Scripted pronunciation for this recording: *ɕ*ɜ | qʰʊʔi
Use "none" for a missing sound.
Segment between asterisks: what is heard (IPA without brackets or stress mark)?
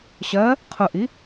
ɕ